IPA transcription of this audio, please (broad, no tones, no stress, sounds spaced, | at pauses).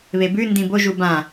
β e b ʉ n d ĩ b o ʒ u b ã